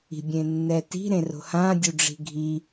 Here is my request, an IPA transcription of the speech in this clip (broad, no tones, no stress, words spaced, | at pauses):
i̤ bʲẽnːɛti̤ ɾẽro̤hã dʲuɖ͡ʐi̤ɡʱi